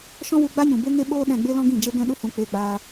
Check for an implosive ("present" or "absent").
present